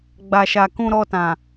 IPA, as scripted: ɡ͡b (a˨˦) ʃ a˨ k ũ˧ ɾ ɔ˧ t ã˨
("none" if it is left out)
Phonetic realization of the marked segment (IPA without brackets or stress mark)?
a˨